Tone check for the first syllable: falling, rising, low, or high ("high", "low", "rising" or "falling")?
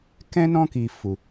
high